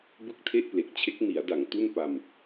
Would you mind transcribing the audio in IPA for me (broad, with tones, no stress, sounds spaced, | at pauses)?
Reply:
b ɯ˥˩ k̚ tʰ e˥˩ ʔ p l e˨˩ k̚ t͡ɕʰ e˦˥ k̚ n i˩˦ a̯ d a˩˦ ŋ t u˥˩ n p a˧ m